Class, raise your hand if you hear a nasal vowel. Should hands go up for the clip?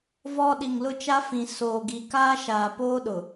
yes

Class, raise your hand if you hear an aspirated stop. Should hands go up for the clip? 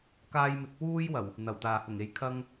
yes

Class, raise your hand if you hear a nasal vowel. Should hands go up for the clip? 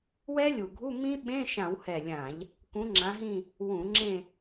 yes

